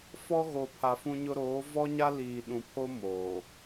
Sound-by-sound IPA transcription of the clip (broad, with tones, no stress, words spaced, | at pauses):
fɔ˦ ɣo˨pʰa˨fũ˦ɲʊ˦ ɾoː˨˦vɔ˦ɲa˦ liː˨ɗũ˨pʰo˦ moː˨